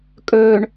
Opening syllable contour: low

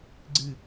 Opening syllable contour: low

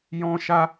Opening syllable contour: high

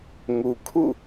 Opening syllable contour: low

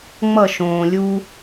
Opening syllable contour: falling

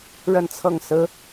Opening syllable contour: falling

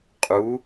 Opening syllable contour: rising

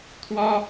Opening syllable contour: high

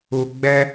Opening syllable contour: low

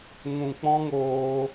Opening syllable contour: low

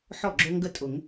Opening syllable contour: falling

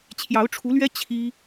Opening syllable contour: rising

